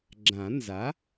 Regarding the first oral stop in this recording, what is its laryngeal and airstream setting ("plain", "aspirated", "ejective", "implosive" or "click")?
click